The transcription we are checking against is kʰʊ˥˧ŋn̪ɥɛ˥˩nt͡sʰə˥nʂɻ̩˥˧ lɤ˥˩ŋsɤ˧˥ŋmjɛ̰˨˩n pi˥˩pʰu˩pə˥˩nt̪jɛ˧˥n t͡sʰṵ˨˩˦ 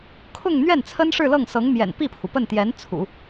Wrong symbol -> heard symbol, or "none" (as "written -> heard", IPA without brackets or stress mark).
none